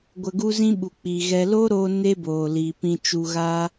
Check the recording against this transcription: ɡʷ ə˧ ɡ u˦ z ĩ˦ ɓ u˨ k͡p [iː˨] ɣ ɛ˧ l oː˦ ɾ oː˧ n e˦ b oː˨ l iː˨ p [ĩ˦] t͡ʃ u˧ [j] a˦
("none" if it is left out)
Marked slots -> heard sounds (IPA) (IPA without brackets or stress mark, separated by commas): iː˨, ĩ˧, ɣ